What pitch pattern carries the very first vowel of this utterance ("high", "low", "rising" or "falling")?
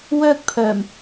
high